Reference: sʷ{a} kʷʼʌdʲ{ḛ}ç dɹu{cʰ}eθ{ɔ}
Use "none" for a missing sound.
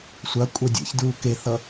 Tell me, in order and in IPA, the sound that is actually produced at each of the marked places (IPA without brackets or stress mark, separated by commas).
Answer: a, ḛ, k, ʌ